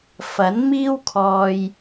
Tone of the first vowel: rising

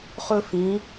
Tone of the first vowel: high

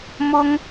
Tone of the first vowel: high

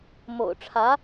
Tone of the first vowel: low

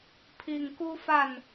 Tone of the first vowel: low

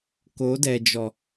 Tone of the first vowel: rising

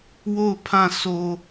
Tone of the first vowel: falling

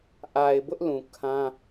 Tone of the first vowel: low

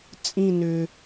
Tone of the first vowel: falling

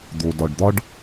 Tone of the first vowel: low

